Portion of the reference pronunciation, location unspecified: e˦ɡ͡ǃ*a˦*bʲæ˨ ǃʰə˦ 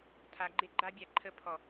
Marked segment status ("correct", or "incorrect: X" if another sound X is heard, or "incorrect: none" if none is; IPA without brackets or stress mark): correct